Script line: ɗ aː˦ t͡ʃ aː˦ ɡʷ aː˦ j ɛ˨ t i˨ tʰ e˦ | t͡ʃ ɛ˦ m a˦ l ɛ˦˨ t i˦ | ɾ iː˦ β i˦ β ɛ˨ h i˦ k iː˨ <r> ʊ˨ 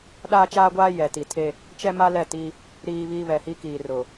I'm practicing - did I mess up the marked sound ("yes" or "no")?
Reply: no